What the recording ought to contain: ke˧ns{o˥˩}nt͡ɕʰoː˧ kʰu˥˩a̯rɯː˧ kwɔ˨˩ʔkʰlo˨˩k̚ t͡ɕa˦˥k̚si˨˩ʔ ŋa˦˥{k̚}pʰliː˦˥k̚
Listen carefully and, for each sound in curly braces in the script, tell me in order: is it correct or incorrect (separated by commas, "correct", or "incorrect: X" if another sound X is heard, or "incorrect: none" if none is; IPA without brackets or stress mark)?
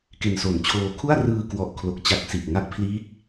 incorrect: o˨˩, correct